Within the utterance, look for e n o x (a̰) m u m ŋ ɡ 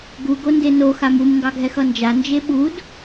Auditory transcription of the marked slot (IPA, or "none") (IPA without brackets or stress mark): a